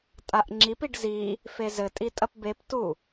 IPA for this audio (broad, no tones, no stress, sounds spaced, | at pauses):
tʼ a ʔ ŋ͡ǁ i p i ɖ z i | f e z ɘ tʼ i tʼ ɐ p b e p t u